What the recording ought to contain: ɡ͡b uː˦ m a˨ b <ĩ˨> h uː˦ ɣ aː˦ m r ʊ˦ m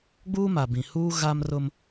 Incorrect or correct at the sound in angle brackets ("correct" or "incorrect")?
correct